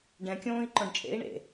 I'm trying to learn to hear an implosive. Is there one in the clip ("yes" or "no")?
no